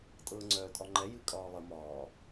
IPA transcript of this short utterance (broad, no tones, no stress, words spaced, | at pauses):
tʼɤːŋ͡ǀœːtʼɒŋ͡ǃɛ jɨkʼɒːlˠə mɒː